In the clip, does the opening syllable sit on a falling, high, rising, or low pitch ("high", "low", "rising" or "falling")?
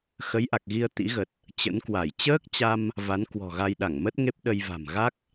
rising